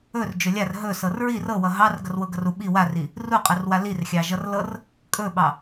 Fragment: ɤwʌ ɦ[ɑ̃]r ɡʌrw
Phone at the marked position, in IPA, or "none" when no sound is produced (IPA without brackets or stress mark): ɑ